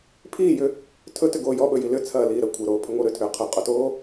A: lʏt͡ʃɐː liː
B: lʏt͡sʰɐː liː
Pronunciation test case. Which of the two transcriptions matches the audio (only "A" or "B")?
B